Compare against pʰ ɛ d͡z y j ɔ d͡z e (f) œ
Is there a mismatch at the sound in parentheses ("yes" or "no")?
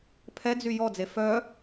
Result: no